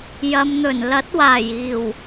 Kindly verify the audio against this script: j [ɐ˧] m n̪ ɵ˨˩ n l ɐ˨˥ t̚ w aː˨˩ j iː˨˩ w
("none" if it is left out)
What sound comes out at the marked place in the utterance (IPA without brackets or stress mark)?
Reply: ɐ˨˧